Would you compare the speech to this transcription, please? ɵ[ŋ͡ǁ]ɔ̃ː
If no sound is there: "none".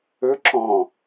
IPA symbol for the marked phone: ǁ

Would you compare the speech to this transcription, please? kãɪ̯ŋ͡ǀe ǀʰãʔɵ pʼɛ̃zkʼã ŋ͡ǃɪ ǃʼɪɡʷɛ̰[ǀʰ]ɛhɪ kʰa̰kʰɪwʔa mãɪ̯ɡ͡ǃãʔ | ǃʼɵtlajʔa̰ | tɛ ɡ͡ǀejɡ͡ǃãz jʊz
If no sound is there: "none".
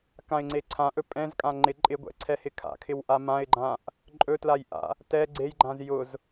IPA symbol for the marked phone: ǀʰ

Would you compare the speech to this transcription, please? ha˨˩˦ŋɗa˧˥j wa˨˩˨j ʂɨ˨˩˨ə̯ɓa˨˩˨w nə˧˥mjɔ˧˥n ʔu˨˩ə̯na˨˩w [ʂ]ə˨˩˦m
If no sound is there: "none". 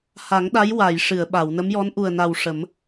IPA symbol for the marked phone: ʂ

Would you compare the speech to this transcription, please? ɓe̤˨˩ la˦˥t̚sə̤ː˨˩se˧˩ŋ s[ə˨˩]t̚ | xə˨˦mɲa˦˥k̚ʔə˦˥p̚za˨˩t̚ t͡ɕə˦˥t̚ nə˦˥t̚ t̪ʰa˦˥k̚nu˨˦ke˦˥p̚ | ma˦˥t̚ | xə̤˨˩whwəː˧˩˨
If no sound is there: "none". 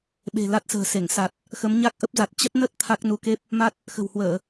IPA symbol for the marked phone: a˨˩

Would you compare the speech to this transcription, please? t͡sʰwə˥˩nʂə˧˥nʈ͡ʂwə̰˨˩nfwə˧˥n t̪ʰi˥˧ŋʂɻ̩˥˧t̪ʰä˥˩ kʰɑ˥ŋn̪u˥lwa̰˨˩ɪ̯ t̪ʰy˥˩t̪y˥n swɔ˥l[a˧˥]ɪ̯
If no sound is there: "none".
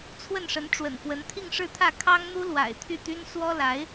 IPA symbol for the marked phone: a˧˥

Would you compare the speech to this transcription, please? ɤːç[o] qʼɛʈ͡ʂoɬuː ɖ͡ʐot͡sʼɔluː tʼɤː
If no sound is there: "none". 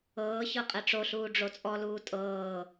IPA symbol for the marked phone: ɤ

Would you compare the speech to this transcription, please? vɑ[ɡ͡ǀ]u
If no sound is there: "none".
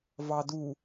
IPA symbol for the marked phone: d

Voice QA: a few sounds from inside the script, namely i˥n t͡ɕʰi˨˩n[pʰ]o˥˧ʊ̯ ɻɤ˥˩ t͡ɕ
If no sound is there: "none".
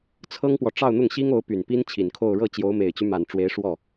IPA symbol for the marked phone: kʰ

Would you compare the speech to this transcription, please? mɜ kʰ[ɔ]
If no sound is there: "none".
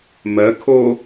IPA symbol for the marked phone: o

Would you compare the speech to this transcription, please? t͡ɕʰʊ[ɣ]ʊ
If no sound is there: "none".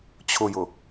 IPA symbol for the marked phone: j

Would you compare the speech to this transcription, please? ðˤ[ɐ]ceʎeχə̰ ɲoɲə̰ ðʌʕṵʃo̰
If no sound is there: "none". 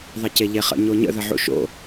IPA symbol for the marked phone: ɐ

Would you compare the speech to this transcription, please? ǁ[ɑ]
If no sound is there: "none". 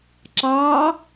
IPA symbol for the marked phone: ɑ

